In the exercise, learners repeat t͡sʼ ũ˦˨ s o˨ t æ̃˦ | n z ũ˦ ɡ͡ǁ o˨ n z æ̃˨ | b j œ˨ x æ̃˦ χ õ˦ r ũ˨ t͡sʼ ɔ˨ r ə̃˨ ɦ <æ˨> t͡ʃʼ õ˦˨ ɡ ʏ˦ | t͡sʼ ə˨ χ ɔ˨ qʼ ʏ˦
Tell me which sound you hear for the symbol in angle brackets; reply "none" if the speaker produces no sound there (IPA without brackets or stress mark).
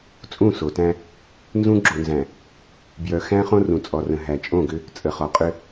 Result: æ˨